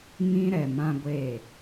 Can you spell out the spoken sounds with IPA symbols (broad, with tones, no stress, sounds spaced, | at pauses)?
ŋ ĩ˦ ɾ ɛ˨ m ã˦ ɡʷ e˦˨